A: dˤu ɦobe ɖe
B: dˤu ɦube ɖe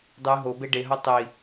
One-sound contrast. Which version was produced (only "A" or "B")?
A